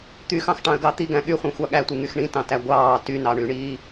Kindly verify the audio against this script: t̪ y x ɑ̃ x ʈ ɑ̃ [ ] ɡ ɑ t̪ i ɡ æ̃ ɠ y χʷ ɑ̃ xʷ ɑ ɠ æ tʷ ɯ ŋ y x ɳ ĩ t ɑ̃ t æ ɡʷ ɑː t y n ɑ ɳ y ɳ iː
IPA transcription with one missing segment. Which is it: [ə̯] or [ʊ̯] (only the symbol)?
ə̯